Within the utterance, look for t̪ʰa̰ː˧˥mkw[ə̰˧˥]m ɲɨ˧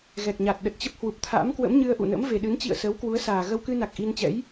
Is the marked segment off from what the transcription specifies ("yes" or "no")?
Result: no